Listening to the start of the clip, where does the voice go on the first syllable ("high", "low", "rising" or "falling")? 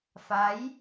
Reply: rising